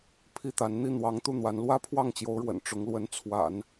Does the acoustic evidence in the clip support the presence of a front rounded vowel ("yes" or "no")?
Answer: no